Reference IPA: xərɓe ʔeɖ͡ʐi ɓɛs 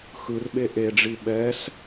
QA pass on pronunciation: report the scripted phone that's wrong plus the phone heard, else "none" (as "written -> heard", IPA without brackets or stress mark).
ə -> ɯ